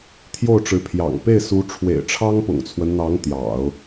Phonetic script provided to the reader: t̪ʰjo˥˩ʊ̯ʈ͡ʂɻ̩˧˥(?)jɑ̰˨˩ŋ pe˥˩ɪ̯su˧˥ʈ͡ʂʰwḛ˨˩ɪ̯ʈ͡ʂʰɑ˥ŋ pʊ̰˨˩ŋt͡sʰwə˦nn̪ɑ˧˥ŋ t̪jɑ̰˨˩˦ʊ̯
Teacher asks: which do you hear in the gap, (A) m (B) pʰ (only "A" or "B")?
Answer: B